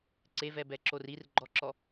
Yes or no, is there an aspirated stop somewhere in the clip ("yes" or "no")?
no